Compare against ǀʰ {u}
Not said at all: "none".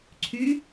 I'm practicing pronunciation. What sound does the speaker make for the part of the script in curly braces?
y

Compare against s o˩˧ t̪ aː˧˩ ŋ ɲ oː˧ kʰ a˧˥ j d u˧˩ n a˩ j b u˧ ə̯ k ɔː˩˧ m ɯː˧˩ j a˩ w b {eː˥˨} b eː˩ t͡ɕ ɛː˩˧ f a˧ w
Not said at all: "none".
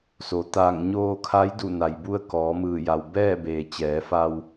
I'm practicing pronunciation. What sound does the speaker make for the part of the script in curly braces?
ɛː˥˨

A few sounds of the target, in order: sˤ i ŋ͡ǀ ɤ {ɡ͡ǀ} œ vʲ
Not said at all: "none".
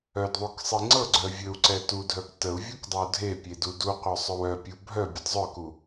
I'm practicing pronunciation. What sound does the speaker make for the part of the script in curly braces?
ɡ͡ǀ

